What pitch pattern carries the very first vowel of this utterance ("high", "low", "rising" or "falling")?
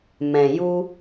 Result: low